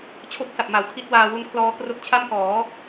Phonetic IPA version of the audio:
t͡ɕʰ o˥˩ k̚ s a˨˩ p̚ m a˩˦ w tʰ i˦˥ t̚ w aː˧ w u˦˥ n kʰ l ɔː˦˥ k r o˦˥ k̚ t͡ɕʰ a˥˩ m k ɔː˩˦

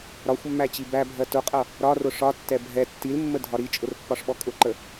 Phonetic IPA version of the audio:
ɾ ɒ xʷ mː æ t͡ɕ i b æ bʱ ɜ t ʊ qʼ ʌ | ɾ ɒ r ʊ ʂ ɒ tː ɛ bʱ ɛ tː i l mː ə dʱ ɒ ɾ i t͡ʃʼ ʊ r pː ɒ ʂ ɓ ɔ kʼ ʊ ǃ ə

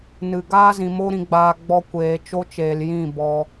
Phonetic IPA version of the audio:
n ɨ˨ ɡ aː˦ z ĩ˨ m o˧ ɾ ĩ˨ ɡ͡b aː˨ ɡ͡b ɔ˧ kʷ eː˨ t͡ʃ o˧ t͡ʃ eː˨ l j ĩ˦˨ b ɔ˧

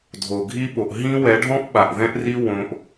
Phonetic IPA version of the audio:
dʱ o˨ ɡʱ i˦ ɓ o˨ ʔ ɦ ĩ˦ w ɛ˨˦ ɖʱ ɔ̃˦ ʔ ɓ a˨ ʔ ð ɛ̃˦ ʔ r i˦ w õ˧ ʔ

